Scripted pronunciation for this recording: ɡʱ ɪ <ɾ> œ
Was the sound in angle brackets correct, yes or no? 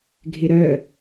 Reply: yes